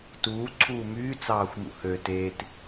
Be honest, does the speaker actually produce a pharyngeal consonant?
no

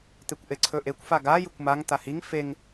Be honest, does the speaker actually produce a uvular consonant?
no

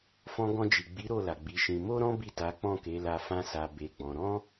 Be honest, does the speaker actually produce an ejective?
no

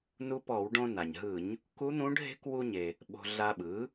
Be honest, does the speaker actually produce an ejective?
no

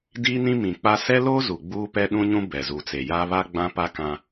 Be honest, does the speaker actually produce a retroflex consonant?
no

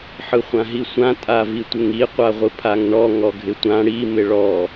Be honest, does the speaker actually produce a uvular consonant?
yes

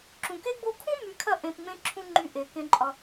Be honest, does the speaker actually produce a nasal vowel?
yes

